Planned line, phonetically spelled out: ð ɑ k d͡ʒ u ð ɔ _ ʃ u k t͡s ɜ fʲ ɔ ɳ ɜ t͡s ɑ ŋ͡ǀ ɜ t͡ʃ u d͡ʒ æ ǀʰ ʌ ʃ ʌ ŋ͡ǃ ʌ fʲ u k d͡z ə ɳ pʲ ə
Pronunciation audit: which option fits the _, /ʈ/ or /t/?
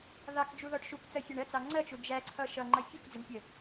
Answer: ʈ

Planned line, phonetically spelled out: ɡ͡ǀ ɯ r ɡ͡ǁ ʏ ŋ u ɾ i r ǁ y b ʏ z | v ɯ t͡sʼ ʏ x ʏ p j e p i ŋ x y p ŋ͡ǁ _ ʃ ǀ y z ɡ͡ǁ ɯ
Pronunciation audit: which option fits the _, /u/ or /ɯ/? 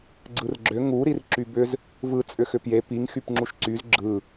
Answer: u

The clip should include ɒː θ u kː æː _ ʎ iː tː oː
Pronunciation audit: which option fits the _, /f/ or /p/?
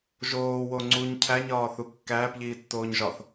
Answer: p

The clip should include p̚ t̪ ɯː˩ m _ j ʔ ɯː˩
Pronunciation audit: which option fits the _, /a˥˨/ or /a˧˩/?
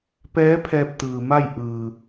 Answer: a˥˨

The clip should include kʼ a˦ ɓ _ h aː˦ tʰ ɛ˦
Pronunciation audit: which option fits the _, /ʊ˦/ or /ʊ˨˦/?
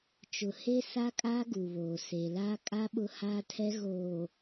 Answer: ʊ˦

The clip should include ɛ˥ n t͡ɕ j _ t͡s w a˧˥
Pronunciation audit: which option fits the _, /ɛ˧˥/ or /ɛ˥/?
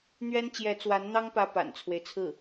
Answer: ɛ˧˥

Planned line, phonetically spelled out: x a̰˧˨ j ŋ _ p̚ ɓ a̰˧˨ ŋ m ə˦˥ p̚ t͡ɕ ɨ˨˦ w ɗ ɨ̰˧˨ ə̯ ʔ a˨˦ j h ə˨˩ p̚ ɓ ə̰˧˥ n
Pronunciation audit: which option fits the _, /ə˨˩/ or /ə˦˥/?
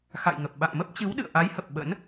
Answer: ə˨˩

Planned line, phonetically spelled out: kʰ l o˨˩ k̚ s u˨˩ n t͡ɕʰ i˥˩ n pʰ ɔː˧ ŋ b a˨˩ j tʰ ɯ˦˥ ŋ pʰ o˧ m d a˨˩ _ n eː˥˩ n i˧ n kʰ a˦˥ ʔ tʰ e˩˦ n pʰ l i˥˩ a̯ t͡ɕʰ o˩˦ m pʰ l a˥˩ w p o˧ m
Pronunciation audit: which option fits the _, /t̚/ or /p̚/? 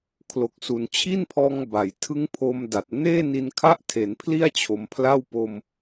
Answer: t̚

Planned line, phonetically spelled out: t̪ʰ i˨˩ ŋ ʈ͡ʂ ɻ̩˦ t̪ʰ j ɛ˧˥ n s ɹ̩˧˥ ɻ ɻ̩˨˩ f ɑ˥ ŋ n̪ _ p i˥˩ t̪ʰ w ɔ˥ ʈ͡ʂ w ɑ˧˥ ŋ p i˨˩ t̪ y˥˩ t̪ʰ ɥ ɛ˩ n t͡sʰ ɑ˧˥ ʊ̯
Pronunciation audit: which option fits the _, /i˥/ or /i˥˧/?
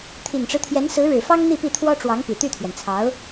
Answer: i˥˧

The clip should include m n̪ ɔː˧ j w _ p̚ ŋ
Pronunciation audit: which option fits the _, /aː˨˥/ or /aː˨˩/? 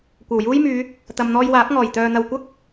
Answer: aː˨˥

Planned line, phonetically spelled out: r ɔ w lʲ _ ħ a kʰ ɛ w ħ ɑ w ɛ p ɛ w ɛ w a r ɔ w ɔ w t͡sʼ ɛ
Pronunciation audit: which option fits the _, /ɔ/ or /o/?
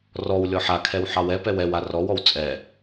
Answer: ɔ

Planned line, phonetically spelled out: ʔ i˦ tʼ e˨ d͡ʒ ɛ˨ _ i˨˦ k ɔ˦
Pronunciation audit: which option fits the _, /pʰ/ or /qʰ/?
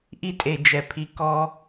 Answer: pʰ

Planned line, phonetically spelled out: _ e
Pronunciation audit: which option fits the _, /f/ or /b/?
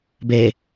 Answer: b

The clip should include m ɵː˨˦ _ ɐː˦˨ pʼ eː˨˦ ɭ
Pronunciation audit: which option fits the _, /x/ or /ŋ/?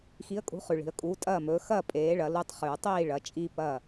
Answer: x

